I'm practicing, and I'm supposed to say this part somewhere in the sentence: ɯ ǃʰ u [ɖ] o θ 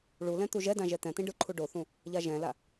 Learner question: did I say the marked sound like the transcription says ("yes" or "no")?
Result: yes